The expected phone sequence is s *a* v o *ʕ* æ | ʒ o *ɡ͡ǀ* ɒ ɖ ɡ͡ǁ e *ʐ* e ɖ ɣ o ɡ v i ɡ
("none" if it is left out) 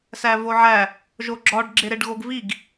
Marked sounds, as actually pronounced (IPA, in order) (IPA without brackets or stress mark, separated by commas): æ, ʕ, ɡ͡ǁ, ɾ